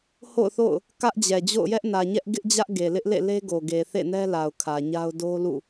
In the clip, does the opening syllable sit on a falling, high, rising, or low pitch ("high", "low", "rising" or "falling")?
falling